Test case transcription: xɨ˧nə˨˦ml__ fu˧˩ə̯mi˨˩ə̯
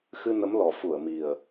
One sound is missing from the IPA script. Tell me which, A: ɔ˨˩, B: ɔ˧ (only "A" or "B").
A